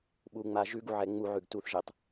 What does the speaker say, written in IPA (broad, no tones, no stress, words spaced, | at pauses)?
ɓuŋ͡ma ʒʉɡuʕɛ ŋ͡muʕʉɡ tuθʒetˤ